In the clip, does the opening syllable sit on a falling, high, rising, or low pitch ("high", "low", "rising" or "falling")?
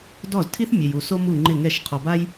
falling